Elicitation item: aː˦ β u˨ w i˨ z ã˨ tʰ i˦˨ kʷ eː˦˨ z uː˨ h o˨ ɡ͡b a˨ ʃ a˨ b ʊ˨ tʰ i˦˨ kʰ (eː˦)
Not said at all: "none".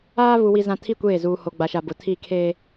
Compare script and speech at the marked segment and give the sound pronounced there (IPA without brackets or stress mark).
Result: eː˦